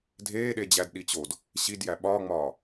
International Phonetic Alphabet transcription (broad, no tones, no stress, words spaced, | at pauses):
dʱeːɗed͡ʑædɗi t͡ɕod | ɕidjæ ɓɒːŋ͡mɒː